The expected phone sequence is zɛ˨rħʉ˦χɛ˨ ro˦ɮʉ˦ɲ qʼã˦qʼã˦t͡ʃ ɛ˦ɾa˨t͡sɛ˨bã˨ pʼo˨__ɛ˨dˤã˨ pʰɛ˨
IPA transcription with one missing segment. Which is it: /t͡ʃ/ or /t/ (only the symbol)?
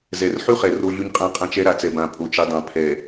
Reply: t͡ʃ